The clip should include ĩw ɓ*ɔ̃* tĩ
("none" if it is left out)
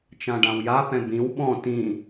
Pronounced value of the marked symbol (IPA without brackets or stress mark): ɔ̃